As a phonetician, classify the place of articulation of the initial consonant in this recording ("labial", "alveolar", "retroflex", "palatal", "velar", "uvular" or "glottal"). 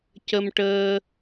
palatal